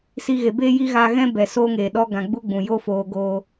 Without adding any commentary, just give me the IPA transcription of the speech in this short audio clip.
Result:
s i˧ ɣ e˨ b e˦ j i˦ ɣ aː˧ ɣ ɛ̃˦ b ɛ˨ s oː˦ ŋ eː˨ ɗ ɔ˦ ɡ ã˨ ɡ͡b u˦ ɡ͡b ũ˨ j oː˦ f oː˧ ɡ oː˦

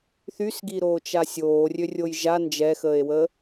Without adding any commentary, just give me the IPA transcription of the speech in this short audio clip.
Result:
θ y s ɡ i ɾ oː t͡ʃ a sʲ oː rʲ ø rʲ o j ʒ a n d͡ʒ ɛ x əː e̯ w ə

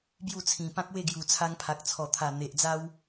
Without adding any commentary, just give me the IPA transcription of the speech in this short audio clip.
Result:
b j u˥˧ t͡sʰ ĩ˨˩ p ã˦ k̚ w e˥˧ ɡ j u˨˩ t͡sʰ a˧ ŋ pʰ a˨ k̚ t͡sʰ ɔ˨˩ t̪ʰ a˨˩ n̪ e˨ ʔ d͡z a˦ w

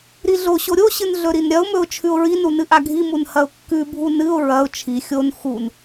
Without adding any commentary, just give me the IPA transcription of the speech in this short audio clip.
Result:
ɾ i ɮ o ɕ o ɾʲ o ɕ ɨ n ɮ ɵ ɾ i n ɾʲ ɐ ʊ̯ m ɵ ʊ̯ t͡ʃʰ ʉ ʊ̯ ɹ i n u n ɨ ʔ a ɡʱ i m u n h ɐ ʊ̯ kː ʉ bʱ u n ɨ ʊ̯ ɹ ɐ ʊ̯ t͡ʃʰ i xʲ o n x u n

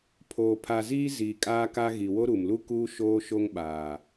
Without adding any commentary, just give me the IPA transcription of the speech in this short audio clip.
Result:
pʰ oː˨ pʰ a˨ z iː˦ z iː˨ kʼ aː˦ k a˦ ɣ i˨ w o˦ ɾ u˨ m l u˦ k uː˦ ʃ oː˦ ʃ o˦ ŋ ɓ aː˨

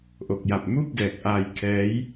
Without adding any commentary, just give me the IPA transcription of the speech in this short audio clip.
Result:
ʔ o˨˩ k̚ j a˨˩ p̚ m uː˥˩ p̚ d ɛː˨˩ k̚ ʔ aː˧ j kʰ ɛː˦˥ j

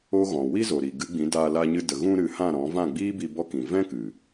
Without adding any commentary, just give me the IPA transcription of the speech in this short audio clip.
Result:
o˦ ɣ ɔ̃˨ w i˦ z o˨ ɾ i˨ ɡ ɨ˨˦ ɡ͡b ĩ˨˦ d aː˧ l a˧ ɲ ɨ˧ d ə˨ ɣ ũ˧ ɾ ɨ˨˦ h ã˦˨ ɾ ɔ̃˨˦ v ã˦˨ ɡ͡b iː˦ b i˧ b ɔ˧ k ĩ˨ v ɛ̃˦ k ɨ˨

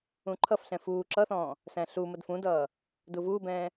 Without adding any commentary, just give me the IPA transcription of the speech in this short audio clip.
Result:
ũ ǃʰ ʌ f ɬ ɛ̃ f uː ǁ ʌ θ ɔ̃ː | s æ̃ ɬ u m ə d f ũ d ʌː | d u v uː b ɛ̃ː

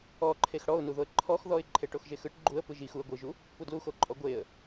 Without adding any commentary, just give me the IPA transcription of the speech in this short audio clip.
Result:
ɔ ǃʰ e x ɽ ɔ ʊ̯ n u ð o ə̯ ǃʰ ɔ x ð ɔ ɪ̯ ǃʰ e ʈ o x ʒ e x ɯ ʈ ɡ͡ǃ u ə̯ p ɯ ʒ i x u ə̯ ɡʷ ɯ ʒ u | p u d l u x o ǃʼ ɔ ɡʷ e ə̯

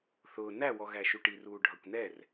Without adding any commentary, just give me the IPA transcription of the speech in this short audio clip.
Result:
θ ʊː n æ w ɔ ɣ æ ʃ u ʈ i r uː ɖʱ ʌ kʷ n ɛ r

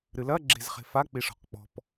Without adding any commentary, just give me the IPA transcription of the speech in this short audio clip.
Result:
ɾ ɨ l ɐ ɡ͡ǁ e̤ z χ e̤ f a k͡p i ʂ ɔ̤ q k͡p ɔ̤ p

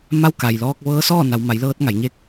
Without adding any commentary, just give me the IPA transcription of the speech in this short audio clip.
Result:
m a˧˥ w k a˩ j l ɔː˧ k̚ ʋ ɤː˧˥ s ɔː˥˨ n a˩˧ w m a˩˧ j l ɤː˧ t̚ ŋ a˩˧ j ɲ e˧˥ k̚

